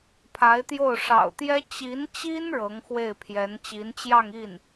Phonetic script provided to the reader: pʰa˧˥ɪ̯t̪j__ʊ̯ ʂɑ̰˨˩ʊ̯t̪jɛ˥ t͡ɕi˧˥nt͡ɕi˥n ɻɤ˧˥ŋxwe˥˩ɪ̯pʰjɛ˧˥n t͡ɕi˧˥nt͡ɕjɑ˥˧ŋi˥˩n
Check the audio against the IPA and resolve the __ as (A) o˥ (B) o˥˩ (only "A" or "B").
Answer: B